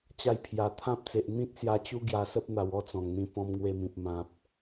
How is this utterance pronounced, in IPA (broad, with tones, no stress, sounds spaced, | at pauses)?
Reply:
t͡ɕ a˧ j pʰ j a˨˩ t̪ʰ ã˦ p̚ t͡s e˨ ʔ n̪ ĩ˦ t̚ s j a˧ t͡ɕ u˦ ɡ j a˧ s ə˦ p̚ n̪ a˨˩ w ɔ˦ t͡s ɔ̃˨˩ ŋ n̪ ĩ˧ p ɔ̃˧ m ŋ w e˧ m ĩ˨ p̚ m ã˨ p̚